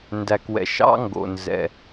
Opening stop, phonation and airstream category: plain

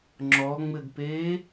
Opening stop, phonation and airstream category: click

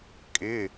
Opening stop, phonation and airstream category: ejective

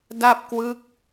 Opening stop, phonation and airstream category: plain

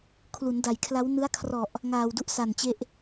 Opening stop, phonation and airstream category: aspirated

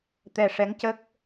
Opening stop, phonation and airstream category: plain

